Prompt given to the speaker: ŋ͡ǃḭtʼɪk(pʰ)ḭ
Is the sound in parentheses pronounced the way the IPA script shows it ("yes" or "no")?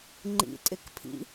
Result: yes